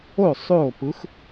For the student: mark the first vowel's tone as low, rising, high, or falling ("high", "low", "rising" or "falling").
falling